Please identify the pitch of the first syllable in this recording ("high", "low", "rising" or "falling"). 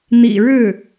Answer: low